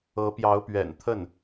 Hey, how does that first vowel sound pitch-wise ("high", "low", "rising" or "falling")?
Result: rising